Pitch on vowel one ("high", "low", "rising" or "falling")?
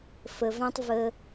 low